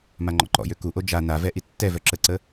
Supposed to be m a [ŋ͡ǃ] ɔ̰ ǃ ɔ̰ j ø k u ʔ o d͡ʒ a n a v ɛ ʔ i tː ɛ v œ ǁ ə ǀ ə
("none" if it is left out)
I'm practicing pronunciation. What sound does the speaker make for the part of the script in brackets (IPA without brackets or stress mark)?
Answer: ŋ͡ǃ